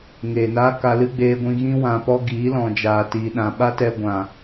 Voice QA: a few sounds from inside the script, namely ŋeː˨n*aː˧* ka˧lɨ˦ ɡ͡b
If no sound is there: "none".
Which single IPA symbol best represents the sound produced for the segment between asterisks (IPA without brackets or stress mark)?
aː˦